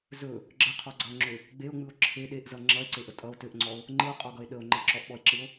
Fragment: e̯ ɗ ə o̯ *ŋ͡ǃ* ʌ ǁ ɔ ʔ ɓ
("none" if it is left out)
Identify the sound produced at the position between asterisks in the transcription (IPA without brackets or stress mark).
ŋ͡ǃ